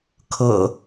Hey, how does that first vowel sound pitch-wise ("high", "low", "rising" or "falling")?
low